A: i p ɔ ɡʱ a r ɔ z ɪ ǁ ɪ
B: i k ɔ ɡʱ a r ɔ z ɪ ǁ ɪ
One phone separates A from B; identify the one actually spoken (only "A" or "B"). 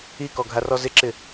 B